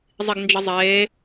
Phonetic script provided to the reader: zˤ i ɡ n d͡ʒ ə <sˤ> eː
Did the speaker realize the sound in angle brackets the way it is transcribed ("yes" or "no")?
no